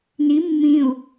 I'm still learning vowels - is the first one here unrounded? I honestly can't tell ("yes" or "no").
yes